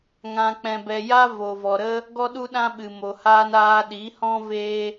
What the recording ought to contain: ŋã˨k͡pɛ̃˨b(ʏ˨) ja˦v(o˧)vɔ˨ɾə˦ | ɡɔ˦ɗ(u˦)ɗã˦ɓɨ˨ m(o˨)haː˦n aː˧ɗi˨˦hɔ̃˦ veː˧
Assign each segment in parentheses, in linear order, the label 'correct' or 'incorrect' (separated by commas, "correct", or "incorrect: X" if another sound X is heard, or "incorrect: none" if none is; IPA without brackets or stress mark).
incorrect: ɛ˨, incorrect: o˨, correct, correct